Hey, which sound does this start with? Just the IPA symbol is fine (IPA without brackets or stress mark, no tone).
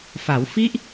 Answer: f